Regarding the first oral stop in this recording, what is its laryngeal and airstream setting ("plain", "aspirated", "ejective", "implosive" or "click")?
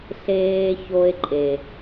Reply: click